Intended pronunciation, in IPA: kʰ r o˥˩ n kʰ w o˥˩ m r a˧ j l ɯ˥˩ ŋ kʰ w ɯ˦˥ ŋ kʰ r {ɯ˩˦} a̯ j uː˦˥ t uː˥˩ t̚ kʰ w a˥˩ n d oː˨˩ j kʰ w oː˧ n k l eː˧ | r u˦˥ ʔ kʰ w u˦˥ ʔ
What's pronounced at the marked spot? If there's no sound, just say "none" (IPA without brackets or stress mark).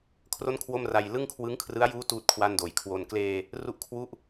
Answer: ɯ˦˥